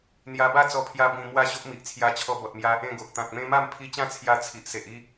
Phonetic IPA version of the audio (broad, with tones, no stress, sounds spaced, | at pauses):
n̪ j a˧ b a˥˧ t͡s ɔ˧ pʰ j a˧ b ĩ˧ m w a˦ ɕ o˦ ʔ m i˨ ʔ t͡sʰ j a˧ t͡ɕʰ ɔ˧ b ɔ˨ t̚ m j a˧ | ẽ˧ ɡ o˨ ʔ t̪ ã˨ k̚ m ẽ˧ m a˥˧ m pʰ i˧ t͡ɕ ã˥˧ t͡sʰ j a˧ t͡sʰ i˨ ʔ s e˨ ʔ i˥˧